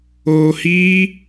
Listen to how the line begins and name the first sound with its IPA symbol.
oː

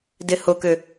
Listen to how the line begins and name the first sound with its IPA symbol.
d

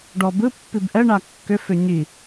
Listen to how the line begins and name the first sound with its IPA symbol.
ɖ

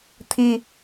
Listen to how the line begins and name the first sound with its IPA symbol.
t̪ʰ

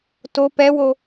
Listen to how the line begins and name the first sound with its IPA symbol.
t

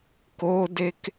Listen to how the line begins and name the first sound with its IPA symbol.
k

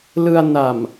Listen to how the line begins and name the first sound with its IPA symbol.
l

